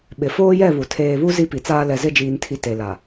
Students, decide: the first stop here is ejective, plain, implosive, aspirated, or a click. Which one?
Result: implosive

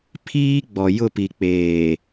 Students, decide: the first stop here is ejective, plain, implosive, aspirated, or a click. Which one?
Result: aspirated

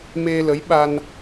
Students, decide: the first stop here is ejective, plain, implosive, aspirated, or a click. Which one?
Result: implosive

